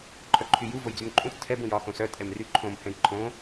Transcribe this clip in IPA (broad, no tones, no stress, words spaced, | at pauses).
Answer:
ǃʰœǃʰyju vojd͡zymǃʼũt͡s tʰɛb ũjɒ xõsœ tʼɛmryǃʰõm hɛ̃jǃʰõ